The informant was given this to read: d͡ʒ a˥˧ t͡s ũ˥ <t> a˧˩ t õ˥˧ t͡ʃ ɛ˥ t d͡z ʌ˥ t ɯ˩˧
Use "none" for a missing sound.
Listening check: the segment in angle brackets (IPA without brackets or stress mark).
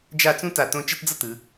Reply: t